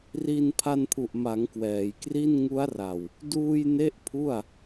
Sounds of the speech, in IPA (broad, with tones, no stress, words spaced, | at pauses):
ri˧n pʰa˧npʰu˨˩ʔma˩˦ŋ kwɛː˩˦jkri˥˩n ŋu˦˥a̯ra˨˩w | duː˧j ne˥˩ʔpʰu˥˩a̯